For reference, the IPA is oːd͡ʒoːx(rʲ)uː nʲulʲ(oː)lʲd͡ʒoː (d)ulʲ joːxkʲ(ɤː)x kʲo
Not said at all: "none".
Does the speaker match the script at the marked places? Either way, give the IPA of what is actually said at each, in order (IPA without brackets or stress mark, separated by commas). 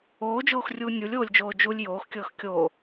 rʲ, oː, d͡ʒ, ɤː